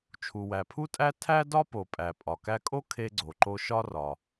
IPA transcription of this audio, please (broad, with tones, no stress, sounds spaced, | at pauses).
t͡ʃʰ u˩ w æ˩ pʰ u˧ tʼ æ˧ tʰ æ˥ d ɒ˥ p o˩ pʼ æ˩ pʼ ɒ˩ k æ˧ kʼ o˥ kʰ e˧ ɡ͡ǀ o˩ ǃ o˧ ʃ ɒ˧ r ɒ˩